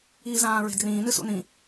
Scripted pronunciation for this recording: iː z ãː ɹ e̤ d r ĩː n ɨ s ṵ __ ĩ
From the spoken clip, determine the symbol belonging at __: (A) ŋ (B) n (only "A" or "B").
B